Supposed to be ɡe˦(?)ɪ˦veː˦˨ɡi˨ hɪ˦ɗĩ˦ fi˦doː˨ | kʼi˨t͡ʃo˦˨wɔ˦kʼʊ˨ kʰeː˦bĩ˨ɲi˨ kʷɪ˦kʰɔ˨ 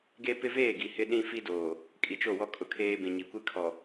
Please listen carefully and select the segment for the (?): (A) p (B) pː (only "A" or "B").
A